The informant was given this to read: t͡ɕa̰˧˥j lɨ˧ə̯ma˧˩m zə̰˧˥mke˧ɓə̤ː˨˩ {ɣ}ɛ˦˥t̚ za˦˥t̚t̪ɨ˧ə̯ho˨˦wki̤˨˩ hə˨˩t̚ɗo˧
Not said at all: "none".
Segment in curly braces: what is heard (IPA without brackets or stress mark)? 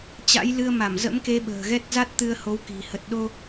ɣ